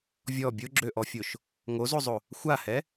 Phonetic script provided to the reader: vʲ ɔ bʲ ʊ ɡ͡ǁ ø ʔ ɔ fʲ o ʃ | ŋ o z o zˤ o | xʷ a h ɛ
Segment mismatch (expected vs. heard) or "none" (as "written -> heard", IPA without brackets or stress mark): none